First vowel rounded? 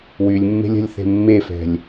yes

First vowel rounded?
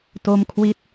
yes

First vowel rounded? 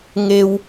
no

